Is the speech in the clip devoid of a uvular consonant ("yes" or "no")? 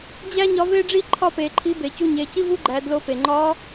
yes